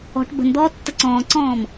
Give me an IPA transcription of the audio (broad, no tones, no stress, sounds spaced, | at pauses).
ɔ̤ ʈ b ə̤ n d̪ ɔː tː ɐ ǀ ɔ̃ː ǀ ɔ̃ː m